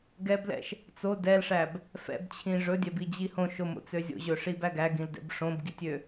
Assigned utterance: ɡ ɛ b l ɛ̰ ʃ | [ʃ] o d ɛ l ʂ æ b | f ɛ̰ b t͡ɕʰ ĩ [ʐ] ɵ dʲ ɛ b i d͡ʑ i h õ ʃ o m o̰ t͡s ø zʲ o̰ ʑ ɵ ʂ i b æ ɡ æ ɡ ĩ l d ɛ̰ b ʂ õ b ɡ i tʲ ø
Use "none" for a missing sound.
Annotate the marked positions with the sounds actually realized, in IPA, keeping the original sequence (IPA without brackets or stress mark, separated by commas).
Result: t͡s, ʐ